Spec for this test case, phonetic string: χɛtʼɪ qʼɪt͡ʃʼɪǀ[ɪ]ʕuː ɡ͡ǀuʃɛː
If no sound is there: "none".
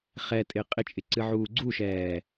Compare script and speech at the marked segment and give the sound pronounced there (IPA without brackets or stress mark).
ɨ